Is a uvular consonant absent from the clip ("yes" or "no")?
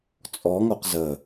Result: no